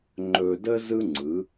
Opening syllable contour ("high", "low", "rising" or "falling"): low